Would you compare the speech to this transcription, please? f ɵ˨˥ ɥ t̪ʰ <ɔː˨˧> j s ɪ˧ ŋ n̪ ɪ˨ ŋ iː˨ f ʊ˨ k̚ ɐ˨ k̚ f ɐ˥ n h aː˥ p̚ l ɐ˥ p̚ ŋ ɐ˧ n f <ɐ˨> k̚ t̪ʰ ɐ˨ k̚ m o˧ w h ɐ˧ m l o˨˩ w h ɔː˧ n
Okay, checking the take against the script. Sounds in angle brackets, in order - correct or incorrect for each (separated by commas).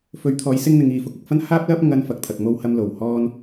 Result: correct, correct